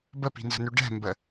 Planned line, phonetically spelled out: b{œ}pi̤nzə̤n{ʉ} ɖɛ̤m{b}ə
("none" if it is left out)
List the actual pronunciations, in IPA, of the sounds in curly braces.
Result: ə, ʉ, b

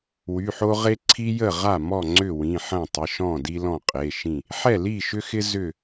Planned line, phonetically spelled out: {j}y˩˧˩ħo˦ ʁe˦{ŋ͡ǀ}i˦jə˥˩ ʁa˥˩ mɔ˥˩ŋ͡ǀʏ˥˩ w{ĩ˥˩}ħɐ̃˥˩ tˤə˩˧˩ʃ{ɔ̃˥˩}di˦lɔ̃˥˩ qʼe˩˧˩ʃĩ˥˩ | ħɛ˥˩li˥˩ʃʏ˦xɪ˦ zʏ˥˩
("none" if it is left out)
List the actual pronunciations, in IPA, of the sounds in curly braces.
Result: w, ǀʰ, ĩ˩˧˩, ɔ̃˥˩

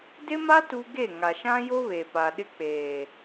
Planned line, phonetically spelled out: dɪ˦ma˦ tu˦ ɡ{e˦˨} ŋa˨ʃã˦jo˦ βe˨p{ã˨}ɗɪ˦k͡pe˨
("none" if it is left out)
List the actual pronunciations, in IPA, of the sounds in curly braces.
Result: e˦˨, a˨

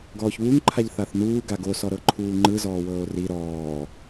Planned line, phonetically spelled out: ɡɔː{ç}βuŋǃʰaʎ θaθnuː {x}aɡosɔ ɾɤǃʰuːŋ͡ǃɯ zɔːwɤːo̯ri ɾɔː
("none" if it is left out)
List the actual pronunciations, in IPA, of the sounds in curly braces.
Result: ç, ɡ

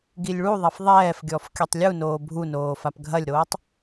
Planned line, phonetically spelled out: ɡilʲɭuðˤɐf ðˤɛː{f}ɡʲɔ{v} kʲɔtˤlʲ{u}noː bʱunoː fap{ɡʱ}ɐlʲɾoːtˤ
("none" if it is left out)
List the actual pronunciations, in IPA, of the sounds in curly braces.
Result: f, f, u, ɡʱ

